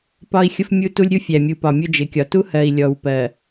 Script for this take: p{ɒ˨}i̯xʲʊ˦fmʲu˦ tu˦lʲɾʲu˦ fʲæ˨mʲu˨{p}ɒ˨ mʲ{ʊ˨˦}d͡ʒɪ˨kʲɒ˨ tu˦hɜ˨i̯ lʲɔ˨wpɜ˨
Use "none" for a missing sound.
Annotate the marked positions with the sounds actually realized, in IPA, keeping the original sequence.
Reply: ɒ˦, p, ʊ˦

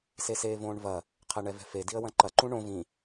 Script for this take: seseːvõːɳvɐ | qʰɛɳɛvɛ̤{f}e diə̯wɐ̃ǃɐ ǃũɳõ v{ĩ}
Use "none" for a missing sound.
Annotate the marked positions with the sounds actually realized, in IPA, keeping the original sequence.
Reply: f, ĩ

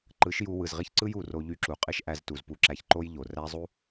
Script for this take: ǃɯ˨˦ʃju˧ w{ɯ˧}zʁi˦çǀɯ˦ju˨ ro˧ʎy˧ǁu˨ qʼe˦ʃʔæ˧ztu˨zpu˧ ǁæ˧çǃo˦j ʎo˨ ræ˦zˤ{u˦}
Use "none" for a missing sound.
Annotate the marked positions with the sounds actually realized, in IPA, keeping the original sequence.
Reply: ɯ˨, u˦

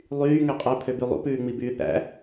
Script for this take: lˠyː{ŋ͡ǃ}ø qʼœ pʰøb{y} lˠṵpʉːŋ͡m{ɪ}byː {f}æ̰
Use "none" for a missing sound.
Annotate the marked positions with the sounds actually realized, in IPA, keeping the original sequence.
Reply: ŋ, y, i, θ

